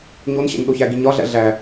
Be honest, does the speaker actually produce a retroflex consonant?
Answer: no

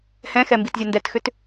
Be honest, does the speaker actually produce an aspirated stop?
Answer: no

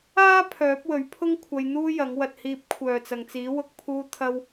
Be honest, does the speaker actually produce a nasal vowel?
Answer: no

